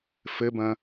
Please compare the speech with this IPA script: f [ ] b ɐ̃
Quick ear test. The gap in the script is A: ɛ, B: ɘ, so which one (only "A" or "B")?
B